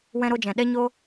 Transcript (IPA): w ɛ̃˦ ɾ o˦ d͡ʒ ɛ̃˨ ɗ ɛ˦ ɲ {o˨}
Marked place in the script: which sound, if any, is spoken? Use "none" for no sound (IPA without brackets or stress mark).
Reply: o˦